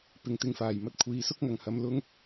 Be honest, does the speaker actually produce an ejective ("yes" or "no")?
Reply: no